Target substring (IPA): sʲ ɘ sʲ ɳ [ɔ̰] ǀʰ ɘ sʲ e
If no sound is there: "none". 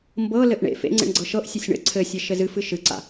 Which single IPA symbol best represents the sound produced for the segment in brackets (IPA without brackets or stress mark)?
ə̰